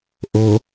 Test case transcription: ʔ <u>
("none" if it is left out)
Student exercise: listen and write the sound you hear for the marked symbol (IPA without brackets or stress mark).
o